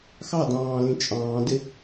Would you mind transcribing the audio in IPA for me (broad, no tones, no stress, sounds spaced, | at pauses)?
x ɑ d ɑ̃ː l ĩ t͡ʃʼ ɑ̃ː d ɪ